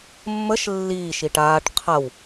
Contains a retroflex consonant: yes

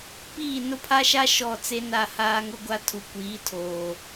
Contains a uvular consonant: no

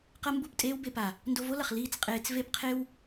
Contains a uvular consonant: yes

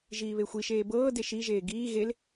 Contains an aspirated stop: no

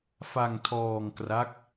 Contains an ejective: no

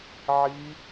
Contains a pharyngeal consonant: yes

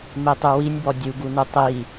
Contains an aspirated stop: no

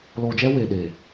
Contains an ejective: no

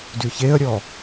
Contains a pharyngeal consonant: no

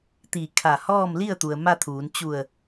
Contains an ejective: no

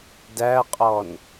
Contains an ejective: yes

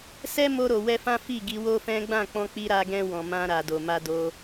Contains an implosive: no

